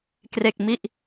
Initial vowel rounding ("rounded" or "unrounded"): unrounded